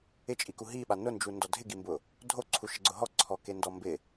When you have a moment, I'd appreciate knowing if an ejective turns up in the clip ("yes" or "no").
yes